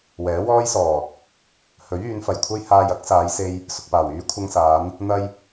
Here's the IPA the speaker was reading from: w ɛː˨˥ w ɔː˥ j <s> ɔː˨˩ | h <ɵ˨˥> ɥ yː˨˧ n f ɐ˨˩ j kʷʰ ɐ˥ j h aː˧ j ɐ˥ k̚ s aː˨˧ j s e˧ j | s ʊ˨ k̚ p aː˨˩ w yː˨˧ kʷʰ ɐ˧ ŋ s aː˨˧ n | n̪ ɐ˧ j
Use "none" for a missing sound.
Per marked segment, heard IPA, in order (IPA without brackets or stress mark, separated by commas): s, ɵ˨˥